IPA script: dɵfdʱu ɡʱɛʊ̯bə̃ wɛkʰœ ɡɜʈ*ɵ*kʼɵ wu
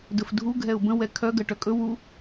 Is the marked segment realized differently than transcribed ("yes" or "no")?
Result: yes